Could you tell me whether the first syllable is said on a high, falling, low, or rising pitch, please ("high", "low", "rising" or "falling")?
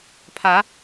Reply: rising